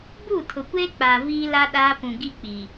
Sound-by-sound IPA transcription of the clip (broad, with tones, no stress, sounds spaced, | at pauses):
b uː˦˨ tʰ ʊ˨ kʷ eː˦ k͡p a˨ v iː˦ l a˦ ɗ aː˦ p ũ˨ ɡ i˦ k͡p i˨